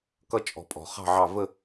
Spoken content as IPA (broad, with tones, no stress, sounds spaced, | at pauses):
k ʌ˦ t͡ʃʼ ɔ̤˨ pʼ ɔ̤˨ χ ɑ̤˦˨ ʕ ɑ˦˨ v ə˦˨